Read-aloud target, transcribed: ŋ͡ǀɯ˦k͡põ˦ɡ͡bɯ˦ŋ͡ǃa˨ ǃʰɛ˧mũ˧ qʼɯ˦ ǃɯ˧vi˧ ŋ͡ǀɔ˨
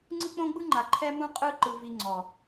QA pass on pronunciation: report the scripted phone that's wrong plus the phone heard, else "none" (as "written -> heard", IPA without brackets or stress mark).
none